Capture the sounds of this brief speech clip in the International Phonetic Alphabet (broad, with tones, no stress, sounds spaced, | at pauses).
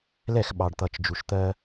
l ɛ˦˨ x ɓ ɑ˨ ɖ t̪ ʌ˨ t͡ʃ d͡ʒ u˨ ʃ t̪ ɜ˦